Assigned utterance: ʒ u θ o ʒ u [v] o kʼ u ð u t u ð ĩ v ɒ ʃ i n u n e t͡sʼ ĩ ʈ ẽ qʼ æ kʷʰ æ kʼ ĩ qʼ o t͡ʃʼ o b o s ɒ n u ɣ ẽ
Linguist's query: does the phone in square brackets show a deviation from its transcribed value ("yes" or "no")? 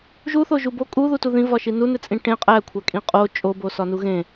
yes